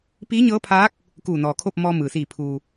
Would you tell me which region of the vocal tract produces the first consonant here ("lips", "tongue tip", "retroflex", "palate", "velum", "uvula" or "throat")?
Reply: lips